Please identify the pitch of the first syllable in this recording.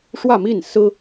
falling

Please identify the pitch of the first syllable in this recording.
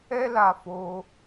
high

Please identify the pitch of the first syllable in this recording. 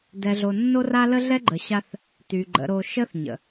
low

